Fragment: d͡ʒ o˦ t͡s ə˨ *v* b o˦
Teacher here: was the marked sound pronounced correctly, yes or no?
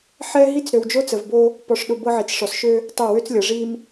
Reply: yes